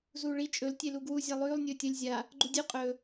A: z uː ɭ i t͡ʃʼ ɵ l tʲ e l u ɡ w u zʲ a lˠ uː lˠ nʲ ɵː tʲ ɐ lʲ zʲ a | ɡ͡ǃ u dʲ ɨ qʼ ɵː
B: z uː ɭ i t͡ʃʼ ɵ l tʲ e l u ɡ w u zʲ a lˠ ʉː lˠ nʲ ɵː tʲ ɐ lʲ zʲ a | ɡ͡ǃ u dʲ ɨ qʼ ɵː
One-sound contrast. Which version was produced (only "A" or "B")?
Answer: B